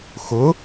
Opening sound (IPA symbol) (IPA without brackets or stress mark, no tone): x